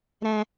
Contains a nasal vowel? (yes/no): yes